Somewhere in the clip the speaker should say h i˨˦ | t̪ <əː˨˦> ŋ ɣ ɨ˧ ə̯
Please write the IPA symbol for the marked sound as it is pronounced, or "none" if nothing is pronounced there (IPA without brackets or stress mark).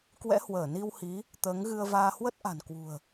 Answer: əː˨˦